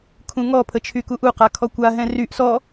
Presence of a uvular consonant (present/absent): present